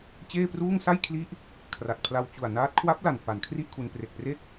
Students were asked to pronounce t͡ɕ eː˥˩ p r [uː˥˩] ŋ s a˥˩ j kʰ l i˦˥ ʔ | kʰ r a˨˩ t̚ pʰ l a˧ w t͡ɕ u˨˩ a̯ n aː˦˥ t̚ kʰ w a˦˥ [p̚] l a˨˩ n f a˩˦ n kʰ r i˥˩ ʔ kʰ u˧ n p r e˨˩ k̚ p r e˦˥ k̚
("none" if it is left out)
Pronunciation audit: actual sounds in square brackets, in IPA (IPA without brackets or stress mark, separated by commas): uː˥˩, p̚